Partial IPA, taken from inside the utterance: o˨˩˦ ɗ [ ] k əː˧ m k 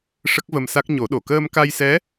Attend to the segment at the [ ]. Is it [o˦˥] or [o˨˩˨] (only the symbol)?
o˨˩˨